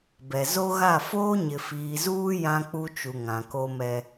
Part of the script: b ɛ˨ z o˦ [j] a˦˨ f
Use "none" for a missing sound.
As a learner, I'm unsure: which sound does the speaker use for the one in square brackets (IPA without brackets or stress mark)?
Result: ɣ